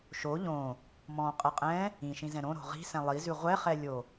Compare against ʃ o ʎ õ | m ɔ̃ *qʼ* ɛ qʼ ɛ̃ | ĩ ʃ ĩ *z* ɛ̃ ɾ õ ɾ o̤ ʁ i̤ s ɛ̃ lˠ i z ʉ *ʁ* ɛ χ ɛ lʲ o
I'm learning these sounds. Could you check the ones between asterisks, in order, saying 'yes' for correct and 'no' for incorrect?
yes, yes, no

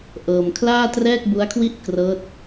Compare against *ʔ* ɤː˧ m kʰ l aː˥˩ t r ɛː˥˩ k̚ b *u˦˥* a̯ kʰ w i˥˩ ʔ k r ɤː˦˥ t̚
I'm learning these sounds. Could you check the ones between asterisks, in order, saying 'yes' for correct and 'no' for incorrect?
yes, yes

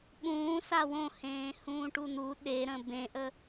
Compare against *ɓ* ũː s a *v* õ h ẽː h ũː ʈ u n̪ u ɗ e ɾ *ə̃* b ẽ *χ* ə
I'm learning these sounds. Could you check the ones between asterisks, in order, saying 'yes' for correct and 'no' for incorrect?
yes, no, yes, no

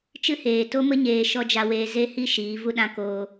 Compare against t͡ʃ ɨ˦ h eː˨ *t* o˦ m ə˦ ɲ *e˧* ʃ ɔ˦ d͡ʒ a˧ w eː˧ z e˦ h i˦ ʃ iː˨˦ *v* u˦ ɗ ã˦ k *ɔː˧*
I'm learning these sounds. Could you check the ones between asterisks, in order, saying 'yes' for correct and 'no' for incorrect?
yes, no, yes, no

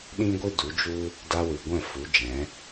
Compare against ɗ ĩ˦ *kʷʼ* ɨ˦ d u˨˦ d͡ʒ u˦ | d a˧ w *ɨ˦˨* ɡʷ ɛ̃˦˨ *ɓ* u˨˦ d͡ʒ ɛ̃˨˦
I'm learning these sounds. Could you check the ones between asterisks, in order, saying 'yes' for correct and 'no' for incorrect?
no, no, no

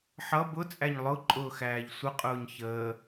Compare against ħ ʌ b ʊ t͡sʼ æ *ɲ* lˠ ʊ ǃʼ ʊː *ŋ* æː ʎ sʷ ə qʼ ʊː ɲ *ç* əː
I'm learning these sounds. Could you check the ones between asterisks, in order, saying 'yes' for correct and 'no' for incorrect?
yes, no, yes

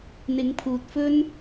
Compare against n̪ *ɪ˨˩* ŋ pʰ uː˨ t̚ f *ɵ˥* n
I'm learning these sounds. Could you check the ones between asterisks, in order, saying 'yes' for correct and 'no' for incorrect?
no, yes

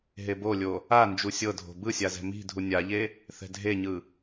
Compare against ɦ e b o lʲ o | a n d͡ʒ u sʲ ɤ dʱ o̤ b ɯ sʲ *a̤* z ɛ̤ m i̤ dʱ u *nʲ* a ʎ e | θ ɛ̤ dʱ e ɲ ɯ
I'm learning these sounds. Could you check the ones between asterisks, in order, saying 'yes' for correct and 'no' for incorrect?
no, yes

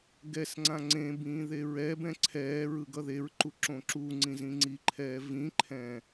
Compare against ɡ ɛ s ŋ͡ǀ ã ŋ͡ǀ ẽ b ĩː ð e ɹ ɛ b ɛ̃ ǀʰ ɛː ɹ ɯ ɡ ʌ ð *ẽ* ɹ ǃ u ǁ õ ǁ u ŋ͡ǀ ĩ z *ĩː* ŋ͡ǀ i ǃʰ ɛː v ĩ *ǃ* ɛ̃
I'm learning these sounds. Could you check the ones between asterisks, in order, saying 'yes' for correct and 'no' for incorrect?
no, no, no

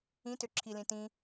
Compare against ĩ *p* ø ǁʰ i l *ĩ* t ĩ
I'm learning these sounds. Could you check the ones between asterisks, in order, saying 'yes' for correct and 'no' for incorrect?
no, yes

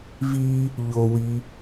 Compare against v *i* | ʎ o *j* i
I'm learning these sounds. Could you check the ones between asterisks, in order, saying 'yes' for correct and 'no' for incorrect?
yes, no

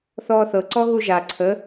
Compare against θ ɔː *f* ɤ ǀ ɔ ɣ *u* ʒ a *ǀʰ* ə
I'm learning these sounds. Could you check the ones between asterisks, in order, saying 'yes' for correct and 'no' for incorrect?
no, yes, yes

